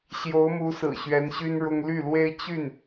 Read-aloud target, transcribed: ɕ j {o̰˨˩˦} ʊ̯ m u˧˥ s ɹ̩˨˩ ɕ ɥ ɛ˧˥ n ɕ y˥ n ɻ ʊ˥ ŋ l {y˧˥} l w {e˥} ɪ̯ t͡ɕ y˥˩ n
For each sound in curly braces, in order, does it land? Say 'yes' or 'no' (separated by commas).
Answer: no, no, yes